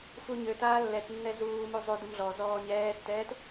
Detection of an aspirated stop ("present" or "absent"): absent